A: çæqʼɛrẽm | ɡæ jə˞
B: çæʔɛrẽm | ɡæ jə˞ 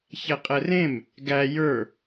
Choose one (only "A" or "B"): A